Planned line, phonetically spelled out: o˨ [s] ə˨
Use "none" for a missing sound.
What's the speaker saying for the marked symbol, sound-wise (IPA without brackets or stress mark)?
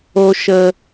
ʃ